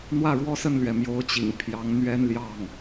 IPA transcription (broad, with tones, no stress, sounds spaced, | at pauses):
n̪ w ä˥˩ ɻ w ɔ˥ s ə˥˩ n l ɥ ɛ˩ m j o˧˥ ʊ̯ t͡ɕ ḭ˨˩ ŋ pʰ j ɑ˧˥ ŋ n̪ ɥ ɛ˥ n l j ɑ˥˩ ŋ